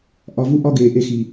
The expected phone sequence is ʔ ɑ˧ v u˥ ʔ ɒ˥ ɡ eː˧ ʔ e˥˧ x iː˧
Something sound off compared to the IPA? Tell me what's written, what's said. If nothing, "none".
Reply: ɑ˧ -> ɒ˧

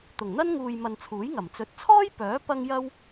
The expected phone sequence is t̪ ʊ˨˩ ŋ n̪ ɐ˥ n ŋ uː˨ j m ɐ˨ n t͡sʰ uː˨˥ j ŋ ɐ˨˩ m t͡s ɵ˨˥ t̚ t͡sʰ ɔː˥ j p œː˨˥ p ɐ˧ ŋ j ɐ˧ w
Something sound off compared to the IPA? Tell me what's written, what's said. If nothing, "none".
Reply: none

